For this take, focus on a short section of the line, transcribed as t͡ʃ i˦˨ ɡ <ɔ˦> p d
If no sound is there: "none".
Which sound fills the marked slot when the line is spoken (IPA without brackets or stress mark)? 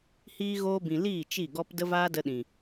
ɔ˦